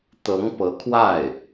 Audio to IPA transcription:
t̪ ɤ˧˥ ŋ p ɤ˧˥ kʰ w a˥˩ ɪ̯

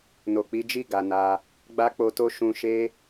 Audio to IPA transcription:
n o˨ k͡p i˨˦ d͡ʒ i˦˨ ɡ a˨ n a˧ | ɡ͡b a˦ k͡p o˧ t o˦ ʃ ũ˧ ʃ e˦

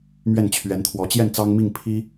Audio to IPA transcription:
m ɥ ɛ˥˩ n t͡ɕʰ ɥ ɛ˧˥ n t̪ʰ w ɔ˧˥ t͡ɕ j ɛ˥˩ n t͡s ɑ˥ ŋ m i˥˩ ŋ pʰ i˥

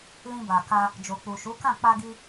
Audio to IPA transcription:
l ĩ˧ b a˨ k a˧ | d͡ʒ o˨ k͡p u˨ ʃ u˨˦ k ã˦˨ k͡p a˧ ɡ i˧

